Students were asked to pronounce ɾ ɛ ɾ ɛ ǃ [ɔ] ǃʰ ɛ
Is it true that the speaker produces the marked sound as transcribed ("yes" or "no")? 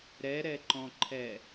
no